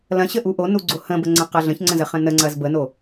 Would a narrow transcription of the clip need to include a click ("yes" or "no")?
yes